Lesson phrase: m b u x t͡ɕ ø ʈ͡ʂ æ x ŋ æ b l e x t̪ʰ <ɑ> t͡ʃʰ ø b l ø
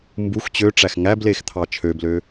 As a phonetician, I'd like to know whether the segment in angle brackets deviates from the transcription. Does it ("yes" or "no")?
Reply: no